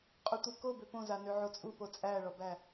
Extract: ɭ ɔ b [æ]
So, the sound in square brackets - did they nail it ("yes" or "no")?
yes